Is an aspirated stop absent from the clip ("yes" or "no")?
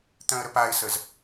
yes